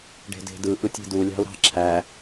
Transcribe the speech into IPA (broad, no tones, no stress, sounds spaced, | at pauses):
ɖ e̤ d e̤ d ɯ ʔ ɯ tʲ e̤ d u lʲ ɑ̤ u̯ ɾ ɑ̤ ǁʰ æ